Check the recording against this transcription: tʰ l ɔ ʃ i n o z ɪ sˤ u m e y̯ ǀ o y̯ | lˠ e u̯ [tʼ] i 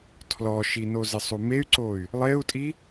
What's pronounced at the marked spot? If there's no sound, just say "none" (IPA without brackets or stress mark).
tʼ